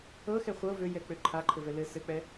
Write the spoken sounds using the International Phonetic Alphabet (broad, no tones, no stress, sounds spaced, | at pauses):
ɤ x ɛ χʷ ɤ v ø j ɛ k͡p ø ǃʰ a ǃʰ ɘ v ɛ l ɘ s ɘ k͡p ɛ